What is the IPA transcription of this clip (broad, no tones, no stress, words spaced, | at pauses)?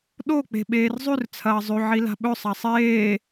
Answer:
ɗok͡pe̤ ɓeːrzˤʉr t͡sʰɐːzˤʉ ʕila̤ɓɵ sˤasˤeː